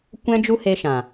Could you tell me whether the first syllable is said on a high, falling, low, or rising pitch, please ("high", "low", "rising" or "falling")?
high